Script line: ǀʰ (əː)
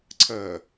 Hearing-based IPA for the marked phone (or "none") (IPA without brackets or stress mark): əː